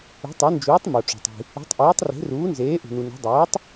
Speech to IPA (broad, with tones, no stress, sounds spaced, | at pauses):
ṳ˩˥ tˤ e˩˥ n d͡ʒ uː˩˥ tˤ m o˩ ʈ͡ʂ o̤˩ tˤ i̤˩ | i̤˩˥ tˤ ʔ iː˩˥ tˤ r e̤˩˥ r uː˩˥ n z eː˩˥ ʔ ṳ˩ n u˩ n o̤˩˥ dˤ ɛː˩˥ tˤ